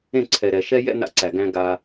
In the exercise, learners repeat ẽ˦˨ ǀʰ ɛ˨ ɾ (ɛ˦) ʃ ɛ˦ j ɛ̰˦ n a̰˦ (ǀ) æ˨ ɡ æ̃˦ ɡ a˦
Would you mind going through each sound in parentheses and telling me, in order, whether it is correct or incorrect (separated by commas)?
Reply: incorrect, correct